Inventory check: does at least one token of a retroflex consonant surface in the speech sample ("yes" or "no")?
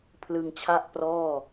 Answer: no